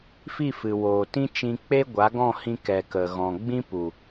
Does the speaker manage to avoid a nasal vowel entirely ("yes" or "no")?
no